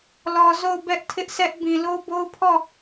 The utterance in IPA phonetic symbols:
l ɔ˨ z o˦˨ ʊ̯ b ɛ˦ ʔ tʰ ɪ˦ ʔ s ɛ˦ ʔ b ĩ˨ l o˦ b o˦ ʊ̯ pʰ ɔ˦˨

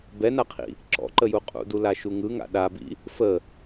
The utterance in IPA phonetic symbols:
b ɛ n a qʰ ḭ | ǁ ɔ̰ ǃ ə j u qʼ ṵ d u l a ʃ u ŋ ɯ ŋ a̰ ɗ a b ḭ | f ə

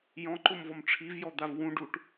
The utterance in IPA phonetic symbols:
j ɔ̃ ǃ ʊ m v ɔ m ʈ͡ʂʰ i v j ɔ d̪ a v w ũ ɖ u ʈ

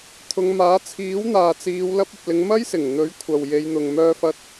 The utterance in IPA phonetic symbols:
t̪ʰ ʊ˨˧ ŋ m aː˨˥ t͡sʰ iː˨˥ w n̪ aː˨ t͡s iː˨˧ w l ɐ˧ p̚ ɐ˨ p̚ l ɪ˨˧ ŋ m ɐ˥ j s ɪ˨˩ ŋ n̪ ɵ˨˥ ɥ kʷʰ ɐ˨ w j e˨˧ j n̪ ʊ˨ ŋ m œː˧ f ɐ˧ t̚

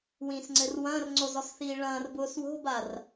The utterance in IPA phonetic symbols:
w ĩ s ŋ͡ǀ ɘ r w ɐ̃ː r ŋ͡ǀ o z ɔ s θ iː ɭ ɐ̃ː r b ʊː s w o̤ b a r

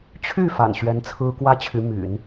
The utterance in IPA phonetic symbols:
t͡ɕʰ y˥˩ f a̰˨˩ n ɕ ɥ ɛ˧˥ n t͡sʰ ɹ̩˥ k w ä˥ t͡ɕʰ y˧˥ m y̰˨˩˦ n

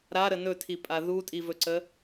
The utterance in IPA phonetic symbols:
ɾ a ɾ ə n ɵ tʰ i pʼ a ð u tʼ i v ɵ ǀ ə

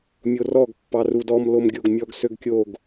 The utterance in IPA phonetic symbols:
mʲ o r ɔ ɡ pː ɑ r u d ɔ m l o m ɡʲ o ɡ mʲ ɔ ɡ s ø ɡ kʲ o ɡ

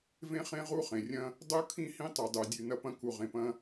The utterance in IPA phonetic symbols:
v ẽ˦ χ ẽ˦ ʁ u˦ χ ẽ˨ rʲ ɐ̃˦ | dˤ u˦ kʰ ĩ˦ h ĩ˦ tˤ u˨ dˤ u˨ dʲ ʉ˨ n ɐ˧ p ɐ̃˧ k u˨ ʁ ẽ˨ p ɐ̃˧

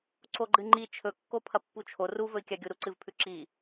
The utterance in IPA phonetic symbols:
ǀ o ɡ͡ǃ ɨ ŋ͡ǃ i t͡ʃʰ ɵ kː o pʰ ɐ pː u t͡ʃʰ o r u v ɵ i̯ kʲ a ɡʲ u ɾ u ǀ ɨ v pʰ ʉ ǁ i

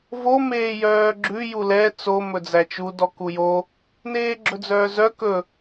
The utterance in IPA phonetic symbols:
v o m eː j œː ɡ͡ǁ ʉ j u l ɛ t͡s o m ɵ d͡z æ t͡ʃ u d ɔ k u j o | n eː ɡ͡ǁ ɵ d͡z œː z œ k ɵ

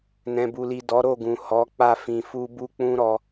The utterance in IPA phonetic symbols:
n ɛ̃˨ b u˨ l i˨ d ɔ˨˦ ɾ o˦˨ ɡ ũ˨ h ɔ˨˦ k͡p a˦˨ f ĩ˧ f u˦ b u˦ k͡p ũ˦ ɾ ɔ˧

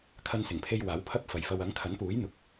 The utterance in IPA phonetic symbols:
kʰ ɐ˧ n s ɪ˨˩ ŋ pʰ e˧ j w aː˨˥ w pʰ ɐ˥ p̚ f ɐ˨ j f ɐ˧ w ɐ˨˥ ŋ kʰ ɐ˨˥ n p uː˨˥ j n̪ ʊ˨˥ k̚

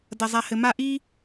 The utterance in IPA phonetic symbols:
d ɐ˨ zˤ a˨ h ɘ˨ m a˦ ʔ i˥

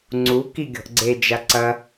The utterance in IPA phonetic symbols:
ŋ͡ǀ u k i ɡʲ ɔ̤ ʔ ɡ͡ǀ e d͡ʒ a ǀ ɐ

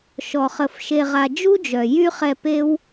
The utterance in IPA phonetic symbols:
ʃ ɔ˧ χ ə˧ f ʃ e˧ ʁ a˧ d͡ʒ u˦ d͡ʒ œ˨ j y˦ χ ɛ˧ p e˦ w

